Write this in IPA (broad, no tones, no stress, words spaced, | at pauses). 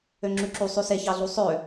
øŋ͡ǁʉǁu sˤʉseçɑɮu sˤø